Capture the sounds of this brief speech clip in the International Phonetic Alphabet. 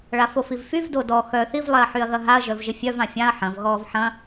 ɭafofivfyv dodɔ xœ θiv lˠɛɐ̯ħyɐ̯ɣɐɦaɐ̯ ʒœvʒɪfʲœv ãfʲãɐ̯ ħɐ̃v ɣɔːvħɐ̃

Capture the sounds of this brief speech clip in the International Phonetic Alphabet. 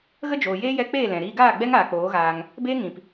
ɣə˦d͡ʒoː˨jeː˦ jɛ˧k͡peː˦˨ lɛ̃˨ ɾiː˧ ɡaː˦˨ɡ͡bɛ˦ŋ aː˨k͡poː˨˦ɣaː˧ŋ | beː˧ŋĩ˨p

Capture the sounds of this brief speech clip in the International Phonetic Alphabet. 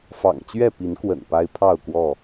fɑ̰˨˩ŋt͡ɕɥɛ˥˨ pi˨˦nkwə̰˨˩n pa˦ɪ̯pʰɑ˥˨ʊ̯kwɔ˥˨

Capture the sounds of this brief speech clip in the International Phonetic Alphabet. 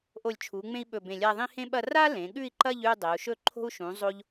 ʔo˧˩lʲt͡ʃʰu˩˧ ŋ͡mẽ˥i̯ɓɵ˧˩bẽ˧˩lʲa˥˧ ðˤĩ˥hẽ˥ɓɐ˥˧ ra˥lẽ˩˧ ɠʉ˥˧i̯ǃɐ˥˧ʎ ʉ˥˧dˤe˩˧u̯ʃɵ˥˧ǃʰo̤˥u̯ ʃũ˩˧zˤo˧ʎ

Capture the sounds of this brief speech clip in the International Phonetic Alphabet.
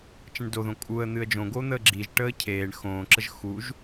t͡ʃə̃ɳdoðõ kʼuə̯ n̪ɨə̯d͡ʒõɡo n̪əːɡ͡ǁiʒʈəː cʰeːɳ xõːǁəʒ xuʒ

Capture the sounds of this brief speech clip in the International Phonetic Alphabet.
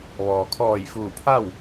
ʋɔː˩kʰɔː˧˩jfuː˧˩pʰa˥˨w

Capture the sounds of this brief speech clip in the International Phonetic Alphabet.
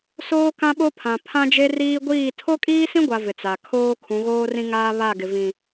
soː˦kã˦ɓo˦pʰã˨ pʰã˦d͡ʒe˦riː˦ ɡʷiː˦˨ tʰo˦kʼiː˦sĩ˦ɡʷa˨ vɪ˨t͡sa˨ kʰoː˦ kʰũ˨˦ɣoː˦rĩ˦ ŋaː˦βa˦˨ɡɪ˨vĩ˨

